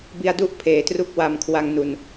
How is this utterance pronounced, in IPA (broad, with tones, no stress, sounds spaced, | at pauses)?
b i˧ a̯ d u˥˩ ʔ pʰ eː˨˩ t r u˦˥ k̚ w a˧ m kʰ w a˧ ŋ n u˨˩ n